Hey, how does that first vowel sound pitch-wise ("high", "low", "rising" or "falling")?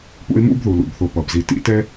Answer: high